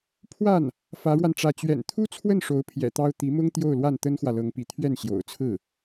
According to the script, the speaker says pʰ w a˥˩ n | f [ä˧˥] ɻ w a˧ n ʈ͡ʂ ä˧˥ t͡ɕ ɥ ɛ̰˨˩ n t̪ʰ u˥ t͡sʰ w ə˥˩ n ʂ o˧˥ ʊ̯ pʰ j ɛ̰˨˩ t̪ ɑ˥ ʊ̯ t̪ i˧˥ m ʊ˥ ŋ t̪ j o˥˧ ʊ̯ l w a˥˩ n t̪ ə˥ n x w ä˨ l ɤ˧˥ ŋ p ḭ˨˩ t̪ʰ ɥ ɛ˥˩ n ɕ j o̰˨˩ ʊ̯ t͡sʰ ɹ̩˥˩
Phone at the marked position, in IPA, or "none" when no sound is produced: ä˧˥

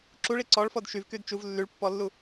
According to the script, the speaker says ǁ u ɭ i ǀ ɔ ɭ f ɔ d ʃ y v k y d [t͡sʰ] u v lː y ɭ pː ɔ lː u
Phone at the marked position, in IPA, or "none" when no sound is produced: t͡ʃ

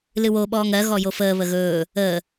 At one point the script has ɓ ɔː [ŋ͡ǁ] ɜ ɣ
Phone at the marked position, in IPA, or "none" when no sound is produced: ŋ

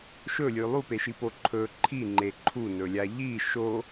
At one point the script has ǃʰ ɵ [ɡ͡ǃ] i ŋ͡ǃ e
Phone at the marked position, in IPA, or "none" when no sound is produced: ǃʰ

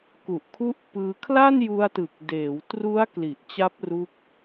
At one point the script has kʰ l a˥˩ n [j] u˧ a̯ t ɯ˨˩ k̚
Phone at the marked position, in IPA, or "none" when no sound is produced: j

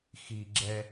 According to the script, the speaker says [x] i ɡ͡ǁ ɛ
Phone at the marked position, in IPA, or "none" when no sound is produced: x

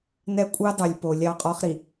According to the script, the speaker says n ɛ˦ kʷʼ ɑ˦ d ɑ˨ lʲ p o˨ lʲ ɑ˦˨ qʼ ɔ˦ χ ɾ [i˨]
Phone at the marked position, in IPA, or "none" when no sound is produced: i˨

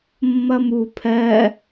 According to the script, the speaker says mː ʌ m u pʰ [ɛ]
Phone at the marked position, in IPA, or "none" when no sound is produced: ɜ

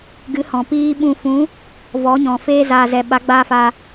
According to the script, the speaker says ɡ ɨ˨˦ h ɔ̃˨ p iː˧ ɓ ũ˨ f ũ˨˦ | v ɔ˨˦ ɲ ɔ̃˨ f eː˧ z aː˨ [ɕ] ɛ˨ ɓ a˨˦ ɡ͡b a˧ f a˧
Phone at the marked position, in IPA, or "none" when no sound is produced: z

